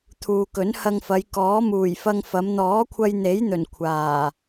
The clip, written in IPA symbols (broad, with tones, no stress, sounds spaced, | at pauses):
t̪ʰ uː˨ k ɵ˨˥ n h ɐ˧ ŋ f ɐ˨˧ j k ɔː˨˥ m uː˨˩ j f ɐ˧ ŋ f ɐ˨˧ m n̪ ɔː˨˥ kʷʰ ɐ˧ j n̪ e˨˥ j n̪ ɵ˨˩ n kʷʰ aː˨˩